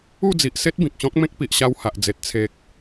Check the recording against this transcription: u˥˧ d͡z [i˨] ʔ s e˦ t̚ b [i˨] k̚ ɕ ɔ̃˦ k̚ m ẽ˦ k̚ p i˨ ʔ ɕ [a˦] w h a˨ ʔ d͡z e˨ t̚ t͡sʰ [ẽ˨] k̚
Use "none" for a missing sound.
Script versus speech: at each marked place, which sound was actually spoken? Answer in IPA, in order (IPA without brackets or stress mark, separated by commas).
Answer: i˨, ĩ˨, a˧, e˨